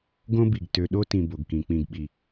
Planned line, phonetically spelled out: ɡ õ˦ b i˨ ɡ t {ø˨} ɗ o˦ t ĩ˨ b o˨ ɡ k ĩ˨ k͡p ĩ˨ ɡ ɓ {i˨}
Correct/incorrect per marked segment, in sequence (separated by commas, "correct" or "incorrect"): correct, correct